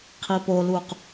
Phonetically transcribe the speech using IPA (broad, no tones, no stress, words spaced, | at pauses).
qʰipoluq